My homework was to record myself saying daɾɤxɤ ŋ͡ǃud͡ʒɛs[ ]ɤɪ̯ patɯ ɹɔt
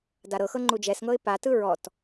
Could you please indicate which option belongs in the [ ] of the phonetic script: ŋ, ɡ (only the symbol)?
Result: ŋ